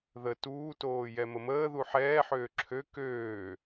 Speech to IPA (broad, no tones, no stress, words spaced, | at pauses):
ðə tuːtoː jɛməməːðu ħɛːħøː ǁʰø køː